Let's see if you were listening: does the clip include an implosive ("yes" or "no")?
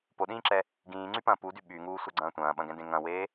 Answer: yes